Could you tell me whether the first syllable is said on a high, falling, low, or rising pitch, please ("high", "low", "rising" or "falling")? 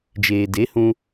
low